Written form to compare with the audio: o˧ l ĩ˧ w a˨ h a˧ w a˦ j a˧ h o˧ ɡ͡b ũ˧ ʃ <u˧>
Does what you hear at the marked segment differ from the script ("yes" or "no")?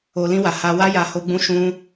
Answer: yes